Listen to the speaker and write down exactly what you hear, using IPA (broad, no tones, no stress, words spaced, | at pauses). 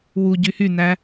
wu ɟyhynæ